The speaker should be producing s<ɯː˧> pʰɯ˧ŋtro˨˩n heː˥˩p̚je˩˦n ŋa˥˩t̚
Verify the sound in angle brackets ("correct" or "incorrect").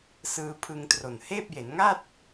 correct